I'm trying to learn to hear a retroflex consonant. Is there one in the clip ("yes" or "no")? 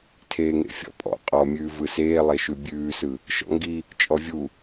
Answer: no